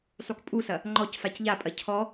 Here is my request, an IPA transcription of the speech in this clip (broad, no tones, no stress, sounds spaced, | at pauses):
sˤ u k pʼ u s ɐ | ŋ͡ǃ ɔ c f a c ʎ a pʼ ɐ cʰ ɔ